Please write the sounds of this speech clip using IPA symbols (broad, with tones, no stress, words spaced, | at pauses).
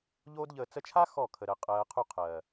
ʎoː˦dʎəː˧ t͡sə˧t͡ʃʰa˦ xɔ˦˨ kʰə˨ɾəː˨ qʼɜː˨ qʰu˧qʰɜː˨